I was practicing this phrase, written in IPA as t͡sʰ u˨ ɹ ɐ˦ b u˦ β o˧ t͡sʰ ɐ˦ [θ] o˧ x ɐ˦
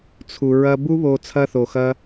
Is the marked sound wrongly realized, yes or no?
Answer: no